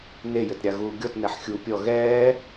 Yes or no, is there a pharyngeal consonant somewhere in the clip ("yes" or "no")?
yes